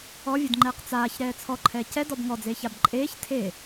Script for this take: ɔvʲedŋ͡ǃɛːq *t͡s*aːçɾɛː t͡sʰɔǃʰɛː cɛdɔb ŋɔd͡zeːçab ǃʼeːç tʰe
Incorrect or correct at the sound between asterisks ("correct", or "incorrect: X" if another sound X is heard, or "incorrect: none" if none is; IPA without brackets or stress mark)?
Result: correct